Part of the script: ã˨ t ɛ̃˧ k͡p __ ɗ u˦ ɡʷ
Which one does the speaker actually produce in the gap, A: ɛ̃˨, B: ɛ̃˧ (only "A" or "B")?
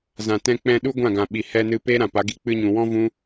B